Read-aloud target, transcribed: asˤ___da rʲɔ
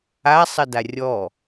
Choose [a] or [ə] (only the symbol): ə